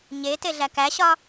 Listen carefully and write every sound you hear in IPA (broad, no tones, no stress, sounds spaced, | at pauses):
ɲ e t e ɮ æ k æ ɕ ɒ